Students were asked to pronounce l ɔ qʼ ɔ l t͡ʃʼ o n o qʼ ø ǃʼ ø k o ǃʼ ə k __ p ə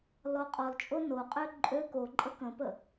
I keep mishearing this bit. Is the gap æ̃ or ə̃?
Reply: ə̃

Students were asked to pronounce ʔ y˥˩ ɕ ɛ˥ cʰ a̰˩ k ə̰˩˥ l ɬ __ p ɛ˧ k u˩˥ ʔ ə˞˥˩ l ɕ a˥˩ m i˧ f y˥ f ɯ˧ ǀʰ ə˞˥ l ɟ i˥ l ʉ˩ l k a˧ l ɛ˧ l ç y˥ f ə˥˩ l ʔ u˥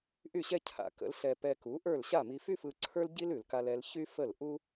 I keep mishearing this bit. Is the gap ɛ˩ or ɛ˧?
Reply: ɛ˧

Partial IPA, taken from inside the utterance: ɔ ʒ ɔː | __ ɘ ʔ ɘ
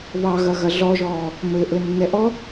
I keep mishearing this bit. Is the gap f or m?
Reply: m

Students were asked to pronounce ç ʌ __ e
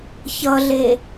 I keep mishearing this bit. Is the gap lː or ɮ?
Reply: ɮ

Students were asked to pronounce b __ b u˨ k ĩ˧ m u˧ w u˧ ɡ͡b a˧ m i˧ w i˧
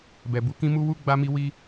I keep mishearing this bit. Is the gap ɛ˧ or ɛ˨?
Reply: ɛ˨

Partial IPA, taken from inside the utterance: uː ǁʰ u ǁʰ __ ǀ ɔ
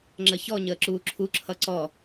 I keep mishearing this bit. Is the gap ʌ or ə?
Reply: ʌ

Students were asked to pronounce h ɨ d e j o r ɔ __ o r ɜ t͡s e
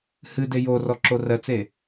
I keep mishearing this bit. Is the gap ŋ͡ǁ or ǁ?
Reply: ǁ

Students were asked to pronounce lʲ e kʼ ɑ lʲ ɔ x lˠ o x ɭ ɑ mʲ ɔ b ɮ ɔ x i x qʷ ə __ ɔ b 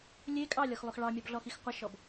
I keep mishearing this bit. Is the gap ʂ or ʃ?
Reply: ʃ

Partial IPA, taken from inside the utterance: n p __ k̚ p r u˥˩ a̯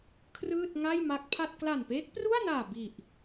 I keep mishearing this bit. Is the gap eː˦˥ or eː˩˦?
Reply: eː˦˥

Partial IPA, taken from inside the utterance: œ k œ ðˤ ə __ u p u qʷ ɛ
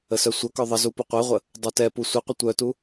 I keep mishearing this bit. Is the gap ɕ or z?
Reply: z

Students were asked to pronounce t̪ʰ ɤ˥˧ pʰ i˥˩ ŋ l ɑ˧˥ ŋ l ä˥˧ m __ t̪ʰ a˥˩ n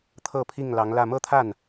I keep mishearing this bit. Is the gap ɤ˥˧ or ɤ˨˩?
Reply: ɤ˥˧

